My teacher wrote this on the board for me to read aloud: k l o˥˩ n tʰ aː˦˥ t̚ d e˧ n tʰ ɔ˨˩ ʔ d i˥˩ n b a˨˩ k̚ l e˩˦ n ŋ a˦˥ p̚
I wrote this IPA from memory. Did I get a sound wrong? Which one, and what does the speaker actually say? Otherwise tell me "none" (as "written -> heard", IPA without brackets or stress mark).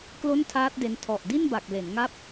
none